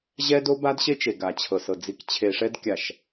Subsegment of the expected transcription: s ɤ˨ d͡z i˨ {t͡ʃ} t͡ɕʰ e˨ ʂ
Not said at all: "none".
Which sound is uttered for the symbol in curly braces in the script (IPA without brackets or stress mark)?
k